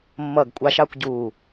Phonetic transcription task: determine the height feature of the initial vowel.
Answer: mid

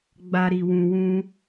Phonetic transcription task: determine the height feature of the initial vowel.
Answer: low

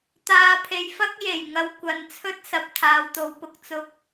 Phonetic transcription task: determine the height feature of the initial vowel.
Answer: low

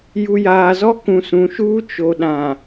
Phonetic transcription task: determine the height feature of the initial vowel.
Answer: high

